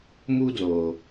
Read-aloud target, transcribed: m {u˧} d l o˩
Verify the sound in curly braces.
correct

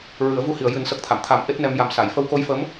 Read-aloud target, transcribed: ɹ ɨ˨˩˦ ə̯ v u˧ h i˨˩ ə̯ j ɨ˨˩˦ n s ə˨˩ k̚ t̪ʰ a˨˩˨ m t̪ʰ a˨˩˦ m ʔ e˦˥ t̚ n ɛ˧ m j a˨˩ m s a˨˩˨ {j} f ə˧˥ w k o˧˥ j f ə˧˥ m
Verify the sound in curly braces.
correct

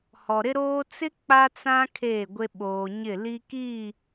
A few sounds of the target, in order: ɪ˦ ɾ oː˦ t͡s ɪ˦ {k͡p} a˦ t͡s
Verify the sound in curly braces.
correct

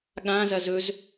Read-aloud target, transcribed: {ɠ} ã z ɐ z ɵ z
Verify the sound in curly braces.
correct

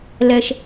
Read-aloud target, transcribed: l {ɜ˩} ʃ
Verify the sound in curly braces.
incorrect: ɛ˩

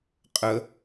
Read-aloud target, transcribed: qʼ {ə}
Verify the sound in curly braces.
correct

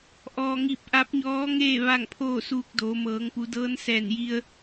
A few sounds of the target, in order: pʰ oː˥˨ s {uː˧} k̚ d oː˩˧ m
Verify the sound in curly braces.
correct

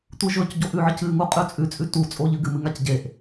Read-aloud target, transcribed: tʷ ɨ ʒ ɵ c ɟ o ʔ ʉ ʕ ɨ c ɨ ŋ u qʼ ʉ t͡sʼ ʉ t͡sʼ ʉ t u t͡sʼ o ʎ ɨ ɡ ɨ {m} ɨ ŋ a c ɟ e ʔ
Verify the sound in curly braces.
correct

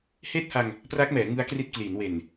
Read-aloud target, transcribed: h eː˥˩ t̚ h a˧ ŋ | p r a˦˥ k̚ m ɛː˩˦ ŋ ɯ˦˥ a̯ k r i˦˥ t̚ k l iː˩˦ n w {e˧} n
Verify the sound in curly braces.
incorrect: e˨˩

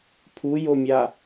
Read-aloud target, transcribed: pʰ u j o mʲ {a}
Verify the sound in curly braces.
correct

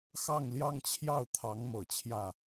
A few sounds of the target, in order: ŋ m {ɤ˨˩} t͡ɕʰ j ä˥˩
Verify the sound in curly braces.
correct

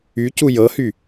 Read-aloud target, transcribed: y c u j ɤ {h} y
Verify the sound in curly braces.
correct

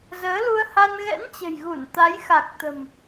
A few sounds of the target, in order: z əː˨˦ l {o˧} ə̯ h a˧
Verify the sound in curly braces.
incorrect: u˧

